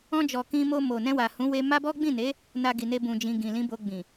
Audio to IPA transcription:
ɔ̃˧d͡ʒɔ˨ kĩ˧mo˧ mo˨ nɛ̃˧wa˨hũ˨˦ we˧ma˦bɔ˦ ɡ͡bĩ˦˨ne˨˦ | na˧ɡi˨ne˧ bũ˧d͡ʒĩ˧ ɡĩ˨ lĩ˨˦bo˧ɡ͡bĩ˨

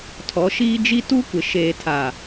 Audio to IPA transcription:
tʰɔ˨˦ʃiː˦d͡ʒi˦ tu˦kʷɪ˨ʃeː˨ tʰa˨

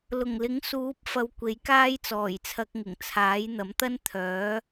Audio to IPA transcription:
lʊ˨˩ŋlɪ˨˥ŋ suː˨˥p̚ fɐ˧wkʷe˨˥jkaː˥jt͡sɔː˨˩j t͡sʰɐ˧k̚ŋɪ˨˩ŋ t͡sʰaː˨˥j n̪ɐ˨˥mt̪ɐ˥nt̪ʰœː˨˥

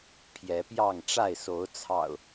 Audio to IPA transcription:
pʰjɛ˨˦pjɑ˥˨ŋ ʈ͡ʂa˥˨ɪ̯so˨˦ʊ̯t͡sʰɑ̰˨˩ʊ̯

